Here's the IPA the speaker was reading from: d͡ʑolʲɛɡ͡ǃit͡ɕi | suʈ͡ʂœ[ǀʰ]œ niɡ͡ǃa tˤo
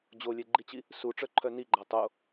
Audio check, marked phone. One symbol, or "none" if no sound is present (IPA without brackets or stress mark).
ǃʰ